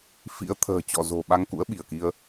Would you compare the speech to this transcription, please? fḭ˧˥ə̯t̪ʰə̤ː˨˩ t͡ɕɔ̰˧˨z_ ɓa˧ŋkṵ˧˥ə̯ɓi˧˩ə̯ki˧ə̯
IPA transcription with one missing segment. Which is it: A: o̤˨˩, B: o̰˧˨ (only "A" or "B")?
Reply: A